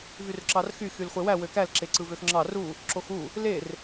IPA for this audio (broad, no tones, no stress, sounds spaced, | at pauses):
v y r ǁ ɑ r x y x y l χʷ e w æ w ø k æ l ǁ e ǀ ɯ v ø x ŋ͡ǁ ɑ r u | ǁ o x u | l e r